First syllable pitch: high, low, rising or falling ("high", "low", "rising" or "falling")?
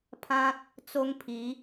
high